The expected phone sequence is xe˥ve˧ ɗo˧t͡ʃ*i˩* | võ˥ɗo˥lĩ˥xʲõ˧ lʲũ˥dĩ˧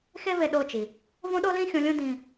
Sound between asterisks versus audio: correct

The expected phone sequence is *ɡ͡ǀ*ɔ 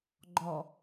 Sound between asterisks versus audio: incorrect: ɡ͡ǃ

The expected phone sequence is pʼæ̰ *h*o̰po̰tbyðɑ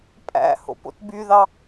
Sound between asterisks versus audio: correct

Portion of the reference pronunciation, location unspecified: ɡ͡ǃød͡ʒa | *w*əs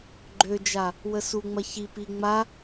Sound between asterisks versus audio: correct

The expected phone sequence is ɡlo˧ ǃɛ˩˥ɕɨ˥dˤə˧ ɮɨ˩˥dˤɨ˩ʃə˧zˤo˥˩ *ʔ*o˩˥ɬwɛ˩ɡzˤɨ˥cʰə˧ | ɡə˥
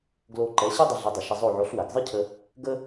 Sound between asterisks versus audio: incorrect: ʕ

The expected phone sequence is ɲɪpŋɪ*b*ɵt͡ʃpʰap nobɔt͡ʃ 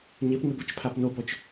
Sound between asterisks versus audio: correct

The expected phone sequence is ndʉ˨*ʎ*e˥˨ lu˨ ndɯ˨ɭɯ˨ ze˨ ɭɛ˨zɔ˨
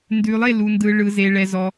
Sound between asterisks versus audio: incorrect: lˠ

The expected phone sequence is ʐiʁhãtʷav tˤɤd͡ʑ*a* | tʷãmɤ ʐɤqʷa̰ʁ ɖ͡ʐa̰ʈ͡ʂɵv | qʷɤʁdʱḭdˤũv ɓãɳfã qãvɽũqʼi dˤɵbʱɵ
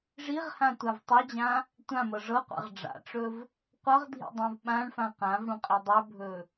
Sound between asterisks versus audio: incorrect: ã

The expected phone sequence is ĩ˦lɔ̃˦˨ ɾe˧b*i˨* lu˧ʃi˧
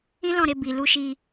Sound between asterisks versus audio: correct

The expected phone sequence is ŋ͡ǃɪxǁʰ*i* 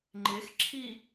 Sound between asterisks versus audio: correct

